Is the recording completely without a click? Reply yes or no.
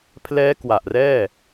yes